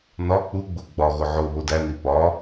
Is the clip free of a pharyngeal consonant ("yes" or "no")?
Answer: no